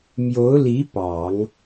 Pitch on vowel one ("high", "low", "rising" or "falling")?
rising